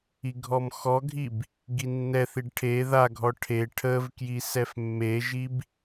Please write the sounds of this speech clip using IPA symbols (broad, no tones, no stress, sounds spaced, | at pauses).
i ɡʱ ɔ m x ɔ ɡʱ i b | ɡ i nː ɛ θ i ɖ ʈʰ e ð a ɡʱ ɔ ʈʰ e ʈʰ ə v k j i s ɛ f mː e ʒ i b